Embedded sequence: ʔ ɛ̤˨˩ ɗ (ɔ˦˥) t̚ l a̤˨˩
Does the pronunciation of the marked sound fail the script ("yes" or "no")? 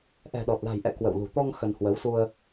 yes